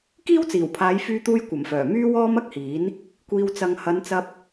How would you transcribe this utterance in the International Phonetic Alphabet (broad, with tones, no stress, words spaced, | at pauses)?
kiː˥wt͡siː˨˩wpʰaː˨˧j fyː˧t̪uː˧j kʷɐ˨˩mfœː˨˩ myː˧wɔː˧ mɐ˥k̚hiː˨˥n | kʷiː˧wt͡sɐ˧ŋ hɐ˨˧nt͡sɐ˧p̚